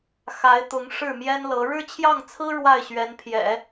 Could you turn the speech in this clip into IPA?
x a˧˥ ɪ̯ t̪ ʊ˧˥ ŋ ʂ ɻ̩˥˩ m j ɛ˥ n l ɤ˧˥ ɻ ɻ̩˥˧ t͡ɕʰ j ɑ˥˩ ŋ t͡sʰ ɹ̩˥ ɻ w a˥˩ ɪ̯ ɕ ɥ ɛ˧˥ n pʰ j ɛ̰˨˩˦

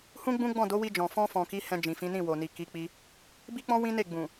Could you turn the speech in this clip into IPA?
h ũ˦ ɡ͡b ũ˦ ɡ͡b ɔ̃˦˨ d o˨˦ w i˧ d͡ʒ ɔ̃˨ f ɔ̃˧ f ɔ̃˨ k i˨˦ h ɛ̃˧ d͡ʒ ĩ˨ f ĩ˨˦ n ĩ˦˨ w o˨ n i˨ k i˨˦ k͡p i˧ | b i˦ k͡p ɔ̃˦ w ĩ˦ n e˦˨ ɡ͡b ũ˨

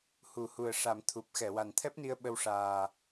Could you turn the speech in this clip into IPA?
h u˨˩˦ h u˨˩ ə̯ ʂ a˨˩˦ m t̪ʰ u˨˩ p̚ x ɛ˨˩˨ w a˨˩ n t̪ʰ ɛ˦˥ p̚ n i˧ ə̯ ɓ ə˧ w ʂ aː˨˩

